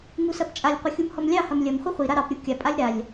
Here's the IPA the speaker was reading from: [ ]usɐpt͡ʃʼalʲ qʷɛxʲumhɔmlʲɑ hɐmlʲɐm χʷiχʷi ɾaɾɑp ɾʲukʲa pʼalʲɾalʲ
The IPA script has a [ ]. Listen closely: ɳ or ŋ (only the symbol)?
ŋ